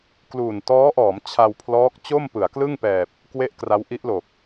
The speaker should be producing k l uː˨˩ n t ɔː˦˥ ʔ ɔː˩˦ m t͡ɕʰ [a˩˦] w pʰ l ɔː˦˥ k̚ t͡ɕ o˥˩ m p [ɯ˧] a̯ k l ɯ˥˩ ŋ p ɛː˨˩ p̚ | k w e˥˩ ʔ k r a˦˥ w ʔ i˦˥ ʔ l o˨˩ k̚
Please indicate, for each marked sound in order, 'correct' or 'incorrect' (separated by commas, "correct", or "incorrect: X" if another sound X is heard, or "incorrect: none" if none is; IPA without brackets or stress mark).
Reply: incorrect: a˧, incorrect: ɯ˩˦